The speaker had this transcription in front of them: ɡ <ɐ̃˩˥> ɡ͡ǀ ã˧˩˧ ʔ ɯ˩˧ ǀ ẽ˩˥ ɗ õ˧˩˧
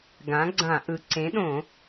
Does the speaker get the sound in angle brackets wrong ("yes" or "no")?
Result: yes